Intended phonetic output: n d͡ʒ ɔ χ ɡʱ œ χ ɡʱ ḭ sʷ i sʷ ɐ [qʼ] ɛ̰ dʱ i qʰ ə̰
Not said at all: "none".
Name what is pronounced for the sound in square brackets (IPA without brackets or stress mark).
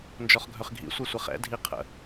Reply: χ